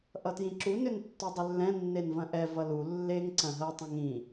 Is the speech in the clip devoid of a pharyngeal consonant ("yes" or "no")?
yes